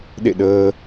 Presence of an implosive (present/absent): present